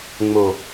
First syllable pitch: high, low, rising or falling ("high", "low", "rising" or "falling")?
low